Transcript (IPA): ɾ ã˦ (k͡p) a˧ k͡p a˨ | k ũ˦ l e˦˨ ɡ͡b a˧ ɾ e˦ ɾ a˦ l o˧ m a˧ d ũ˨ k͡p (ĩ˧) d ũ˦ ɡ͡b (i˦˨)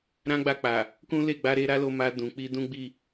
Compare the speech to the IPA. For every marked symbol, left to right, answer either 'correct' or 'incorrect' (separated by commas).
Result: incorrect, incorrect, correct